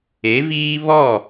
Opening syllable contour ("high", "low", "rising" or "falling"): rising